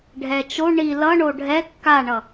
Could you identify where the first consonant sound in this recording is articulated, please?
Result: retroflex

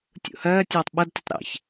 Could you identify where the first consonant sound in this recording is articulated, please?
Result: alveolar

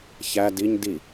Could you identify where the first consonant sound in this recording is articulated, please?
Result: palatal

